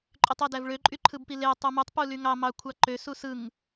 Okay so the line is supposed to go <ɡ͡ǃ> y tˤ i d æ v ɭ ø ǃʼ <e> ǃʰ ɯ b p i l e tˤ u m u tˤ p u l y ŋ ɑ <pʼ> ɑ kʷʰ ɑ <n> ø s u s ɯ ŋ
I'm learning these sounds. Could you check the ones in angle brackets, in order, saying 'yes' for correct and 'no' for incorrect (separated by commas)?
no, no, no, no